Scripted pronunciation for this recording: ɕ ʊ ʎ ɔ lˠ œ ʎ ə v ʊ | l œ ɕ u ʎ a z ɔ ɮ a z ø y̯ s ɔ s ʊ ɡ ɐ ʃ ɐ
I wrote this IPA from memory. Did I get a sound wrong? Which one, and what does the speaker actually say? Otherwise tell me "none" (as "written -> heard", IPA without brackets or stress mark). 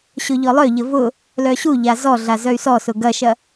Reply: ø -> œ